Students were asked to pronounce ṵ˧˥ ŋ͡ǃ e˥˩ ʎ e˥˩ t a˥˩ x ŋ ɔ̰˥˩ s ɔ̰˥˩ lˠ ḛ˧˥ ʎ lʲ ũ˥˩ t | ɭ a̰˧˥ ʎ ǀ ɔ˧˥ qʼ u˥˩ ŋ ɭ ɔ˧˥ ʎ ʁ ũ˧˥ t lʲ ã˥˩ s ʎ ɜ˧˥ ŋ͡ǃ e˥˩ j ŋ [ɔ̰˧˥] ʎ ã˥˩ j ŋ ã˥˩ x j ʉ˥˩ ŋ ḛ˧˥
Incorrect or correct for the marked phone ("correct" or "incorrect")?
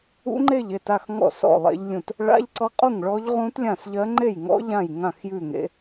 correct